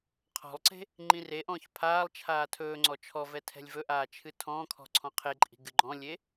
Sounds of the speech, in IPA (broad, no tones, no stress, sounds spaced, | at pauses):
qʰ ɔ̤ lˠ ǀ e̤ | ŋ͡ǃ ĩ r e ʔ ɔ̃ː ç pʰ aː lˠ t͡ʃʰ aː tʰ ɵː ŋ͡ǀ ɔ t͡ʃʰ ɔ v ɛ tʰ ɛ̤ lʲ v ɵ ʔ aː t͡ʃʰ ɨ tʰ ɔ̃ː kʰ ɔ̤ ǀʰ ɔ̃ qʰ e ǃʼ i̤ ɡ ɨ ɡ͡ǃ ɔ̃ lʲ e